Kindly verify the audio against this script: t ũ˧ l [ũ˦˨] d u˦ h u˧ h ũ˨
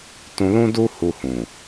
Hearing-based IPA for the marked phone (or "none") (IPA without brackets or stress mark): ũ˦